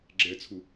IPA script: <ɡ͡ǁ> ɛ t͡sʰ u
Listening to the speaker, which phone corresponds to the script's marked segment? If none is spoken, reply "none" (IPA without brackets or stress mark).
ɡ͡ǁ